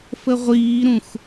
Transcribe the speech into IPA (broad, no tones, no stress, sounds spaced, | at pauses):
f ə ʁʷ iː ɾ ũ x